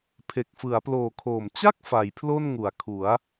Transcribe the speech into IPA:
pʰe˨˩k̚fɯ˩˦a̯ploː˨˩ kʰoː˨˩m t͡ɕa˥˩k̚ fa˩˦jpʰlo˥˩n ŋu˨˩a̯ kʰu˩˦a̯

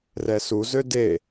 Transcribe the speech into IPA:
rɛsuzø de

